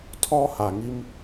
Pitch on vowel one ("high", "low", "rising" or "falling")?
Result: high